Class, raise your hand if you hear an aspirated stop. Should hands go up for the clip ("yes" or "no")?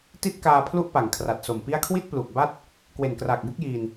yes